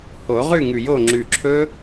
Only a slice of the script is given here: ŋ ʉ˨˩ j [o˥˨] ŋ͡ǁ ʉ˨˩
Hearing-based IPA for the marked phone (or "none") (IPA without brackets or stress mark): o˥˨